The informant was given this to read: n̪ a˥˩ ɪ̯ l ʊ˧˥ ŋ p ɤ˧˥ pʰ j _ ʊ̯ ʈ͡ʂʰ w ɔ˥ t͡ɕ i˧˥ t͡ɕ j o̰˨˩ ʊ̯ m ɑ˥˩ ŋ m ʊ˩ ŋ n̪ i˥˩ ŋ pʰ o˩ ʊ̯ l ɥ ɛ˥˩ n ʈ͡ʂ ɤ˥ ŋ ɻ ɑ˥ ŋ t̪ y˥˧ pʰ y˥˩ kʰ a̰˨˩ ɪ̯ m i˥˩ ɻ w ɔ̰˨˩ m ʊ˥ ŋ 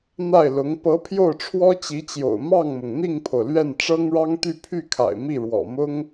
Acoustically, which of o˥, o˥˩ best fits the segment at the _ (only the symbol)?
o˥˩